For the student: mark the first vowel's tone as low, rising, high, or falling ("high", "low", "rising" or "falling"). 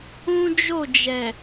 high